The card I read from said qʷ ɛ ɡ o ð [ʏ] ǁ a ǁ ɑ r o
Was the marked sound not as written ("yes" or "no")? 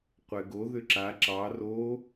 no